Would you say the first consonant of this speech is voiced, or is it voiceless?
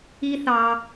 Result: voiceless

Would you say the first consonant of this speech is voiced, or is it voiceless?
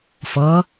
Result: voiceless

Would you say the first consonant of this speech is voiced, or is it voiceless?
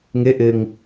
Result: voiced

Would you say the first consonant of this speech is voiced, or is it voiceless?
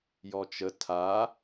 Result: voiced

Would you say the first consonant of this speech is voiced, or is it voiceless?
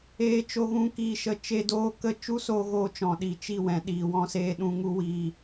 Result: voiceless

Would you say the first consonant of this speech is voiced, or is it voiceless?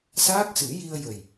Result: voiceless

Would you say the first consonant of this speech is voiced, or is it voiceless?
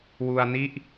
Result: voiced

